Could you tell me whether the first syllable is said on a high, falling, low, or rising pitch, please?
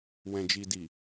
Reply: low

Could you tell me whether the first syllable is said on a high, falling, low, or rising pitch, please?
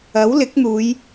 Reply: rising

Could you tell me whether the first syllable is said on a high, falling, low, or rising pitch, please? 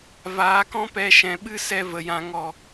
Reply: rising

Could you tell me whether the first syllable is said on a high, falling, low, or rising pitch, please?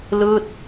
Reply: falling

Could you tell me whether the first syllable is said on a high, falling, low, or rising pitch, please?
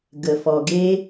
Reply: low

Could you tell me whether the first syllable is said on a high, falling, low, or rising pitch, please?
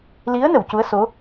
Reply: rising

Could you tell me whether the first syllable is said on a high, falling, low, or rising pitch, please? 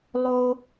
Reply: high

